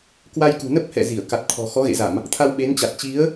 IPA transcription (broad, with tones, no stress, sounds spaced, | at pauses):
k w a˧ j k ṳ˨˩ n ə˦˥ p̚ h ɛ̰˧˨ z i˧˩ ə̯ k a˨˩ t̚ t̪ʰ ɔ̤˨˩ x ɔ˨˦ ɣ ḛ˧˨ z a˧˩˨ m | t̪ʰ a˧ w ɓ e˨˦ n t͡ɕ a˨˩ t̚ t͡ɕ i˨˦ ə̯